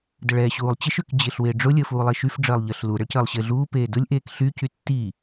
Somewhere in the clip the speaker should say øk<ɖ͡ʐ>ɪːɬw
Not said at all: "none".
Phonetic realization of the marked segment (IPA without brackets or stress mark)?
d͡ʑ